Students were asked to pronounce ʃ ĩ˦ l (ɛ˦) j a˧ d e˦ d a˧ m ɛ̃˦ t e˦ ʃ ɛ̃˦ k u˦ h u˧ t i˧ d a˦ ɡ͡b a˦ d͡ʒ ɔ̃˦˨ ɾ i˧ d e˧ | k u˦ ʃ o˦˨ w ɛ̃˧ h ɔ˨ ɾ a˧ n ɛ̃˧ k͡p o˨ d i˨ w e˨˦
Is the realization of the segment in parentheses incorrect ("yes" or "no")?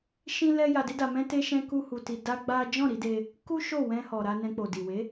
no